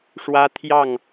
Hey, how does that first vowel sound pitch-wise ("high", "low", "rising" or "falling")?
high